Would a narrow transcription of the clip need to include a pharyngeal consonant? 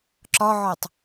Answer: yes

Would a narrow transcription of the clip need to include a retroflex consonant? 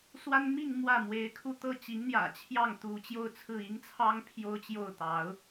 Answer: no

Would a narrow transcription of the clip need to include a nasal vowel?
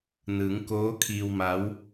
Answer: no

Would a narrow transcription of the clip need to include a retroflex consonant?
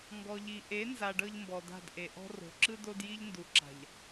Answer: yes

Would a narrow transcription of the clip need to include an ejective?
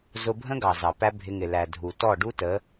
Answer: no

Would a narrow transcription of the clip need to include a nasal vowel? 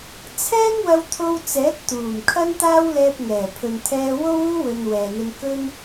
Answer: no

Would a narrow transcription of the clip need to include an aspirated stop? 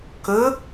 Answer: no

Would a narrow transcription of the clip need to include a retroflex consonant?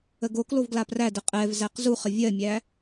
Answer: no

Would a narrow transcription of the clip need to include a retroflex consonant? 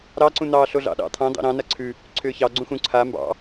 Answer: no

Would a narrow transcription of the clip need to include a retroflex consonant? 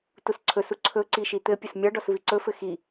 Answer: yes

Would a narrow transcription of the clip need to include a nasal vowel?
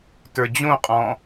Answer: yes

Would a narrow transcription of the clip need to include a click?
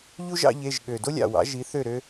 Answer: no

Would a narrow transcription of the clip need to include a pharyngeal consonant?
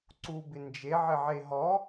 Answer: yes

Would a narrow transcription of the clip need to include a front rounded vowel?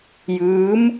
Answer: no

